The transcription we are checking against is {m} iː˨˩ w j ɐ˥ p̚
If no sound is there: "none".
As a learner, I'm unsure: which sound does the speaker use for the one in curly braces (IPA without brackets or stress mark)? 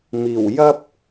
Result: m